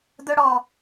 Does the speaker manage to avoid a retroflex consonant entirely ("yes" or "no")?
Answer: no